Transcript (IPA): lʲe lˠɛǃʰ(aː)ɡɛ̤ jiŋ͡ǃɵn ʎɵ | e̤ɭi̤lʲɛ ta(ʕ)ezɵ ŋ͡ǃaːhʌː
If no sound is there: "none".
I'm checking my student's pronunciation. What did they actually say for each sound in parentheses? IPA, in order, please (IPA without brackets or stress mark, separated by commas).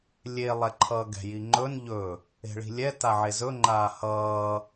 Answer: ʌː, ʕ